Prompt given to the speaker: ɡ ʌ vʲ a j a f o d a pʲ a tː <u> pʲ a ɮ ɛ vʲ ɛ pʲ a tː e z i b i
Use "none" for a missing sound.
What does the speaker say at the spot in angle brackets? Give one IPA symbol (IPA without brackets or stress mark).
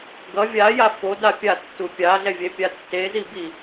u